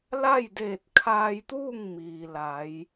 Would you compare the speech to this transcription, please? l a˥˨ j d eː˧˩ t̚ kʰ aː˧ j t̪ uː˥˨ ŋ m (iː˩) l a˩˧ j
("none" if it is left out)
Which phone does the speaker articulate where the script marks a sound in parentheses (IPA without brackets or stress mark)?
iː˩